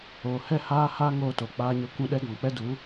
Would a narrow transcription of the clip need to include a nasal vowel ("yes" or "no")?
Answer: yes